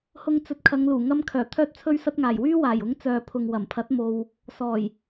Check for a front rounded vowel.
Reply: present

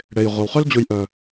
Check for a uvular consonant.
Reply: present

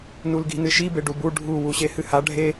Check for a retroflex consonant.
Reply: present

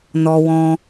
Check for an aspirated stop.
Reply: absent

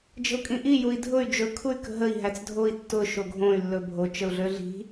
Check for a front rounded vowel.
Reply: present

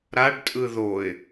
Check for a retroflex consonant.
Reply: present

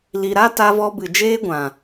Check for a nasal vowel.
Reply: present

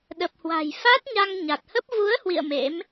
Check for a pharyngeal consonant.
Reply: absent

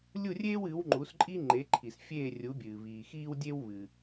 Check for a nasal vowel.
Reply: absent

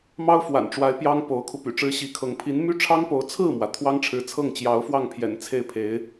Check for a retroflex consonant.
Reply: present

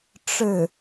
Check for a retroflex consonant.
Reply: present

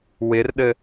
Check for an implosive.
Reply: present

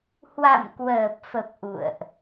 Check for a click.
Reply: absent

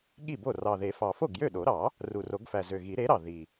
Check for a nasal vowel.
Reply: absent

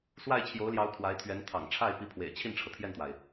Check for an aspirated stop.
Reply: present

